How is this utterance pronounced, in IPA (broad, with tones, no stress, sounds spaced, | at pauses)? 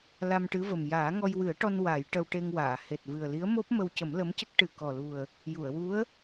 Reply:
l a˧ m ʈ ɨ˧˥ v ə˨˩ m j aː˨˩˦ ŋ ɔ˧ j w ɨ˨˩˦ ə̯ ʈ ɔ˧ n w a˨˩˦ j ʈ ə˧ w ʈ e˧ ŋ w aː˨˩˨ h e˨˩ t̚ v ɨ˨˩ ə̯ l i˧˥ ə̯ m o˦˥ p̚ m ə˧ w c ə˨˩˦ m l ə˧˥ m c ə˦˥ k̚ ʈ ɨ˨˩ k ɔ˨˩ l u˨˩ ə̯ | j u˨˩˨ ə̯ w u˧˥ ə̯